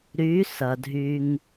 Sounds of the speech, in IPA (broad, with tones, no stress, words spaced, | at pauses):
ɾy˨˦ sɐ˨dʱy˧ŋ